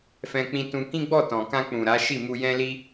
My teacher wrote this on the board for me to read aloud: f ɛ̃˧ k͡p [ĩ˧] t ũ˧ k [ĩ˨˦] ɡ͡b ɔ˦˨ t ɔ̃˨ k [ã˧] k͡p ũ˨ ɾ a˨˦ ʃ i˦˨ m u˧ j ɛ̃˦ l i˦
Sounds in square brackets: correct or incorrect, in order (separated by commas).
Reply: correct, incorrect, correct